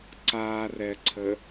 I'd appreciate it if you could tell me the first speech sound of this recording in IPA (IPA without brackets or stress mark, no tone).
ǀ